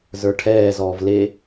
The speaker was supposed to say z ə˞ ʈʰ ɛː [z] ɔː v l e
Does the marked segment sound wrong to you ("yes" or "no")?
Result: no